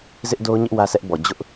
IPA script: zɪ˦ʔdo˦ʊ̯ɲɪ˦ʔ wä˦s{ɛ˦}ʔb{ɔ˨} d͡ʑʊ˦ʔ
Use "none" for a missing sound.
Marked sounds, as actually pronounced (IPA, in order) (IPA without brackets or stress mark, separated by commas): ɛ˦, ɔ˨